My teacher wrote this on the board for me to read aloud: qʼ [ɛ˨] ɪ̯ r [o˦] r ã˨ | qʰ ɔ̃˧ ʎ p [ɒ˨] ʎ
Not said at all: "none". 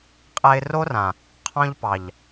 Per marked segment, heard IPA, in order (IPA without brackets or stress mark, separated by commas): ɛ˧, o˦, ɑ˨